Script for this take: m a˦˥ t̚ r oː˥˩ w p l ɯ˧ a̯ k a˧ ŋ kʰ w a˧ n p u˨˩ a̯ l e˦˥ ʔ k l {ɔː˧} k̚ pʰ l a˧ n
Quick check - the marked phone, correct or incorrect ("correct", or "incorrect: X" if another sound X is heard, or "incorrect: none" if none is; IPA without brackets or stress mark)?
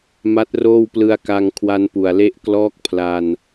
incorrect: ɔː˦˥